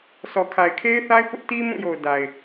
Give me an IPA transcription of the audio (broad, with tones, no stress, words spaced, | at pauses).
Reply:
sʰɔ˨kʰa˨ɪ̯kʰe˦ɪ̯θa˦ɪ̯ pʊ˦ʔti˦mũ˦˨jo˨ʊ̯ da˨ɪ̯